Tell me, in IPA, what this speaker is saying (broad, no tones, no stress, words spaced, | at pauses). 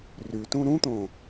rytũ ɾũt̪õ